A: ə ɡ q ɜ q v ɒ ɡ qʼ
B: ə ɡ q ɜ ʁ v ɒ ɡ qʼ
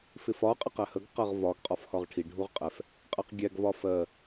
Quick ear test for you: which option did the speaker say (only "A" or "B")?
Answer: B